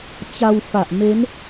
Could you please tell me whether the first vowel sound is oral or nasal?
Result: oral